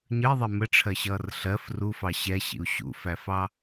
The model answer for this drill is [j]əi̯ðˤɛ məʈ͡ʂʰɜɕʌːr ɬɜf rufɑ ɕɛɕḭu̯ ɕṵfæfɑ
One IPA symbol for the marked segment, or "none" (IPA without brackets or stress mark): ɲ